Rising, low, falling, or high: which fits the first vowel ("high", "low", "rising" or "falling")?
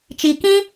low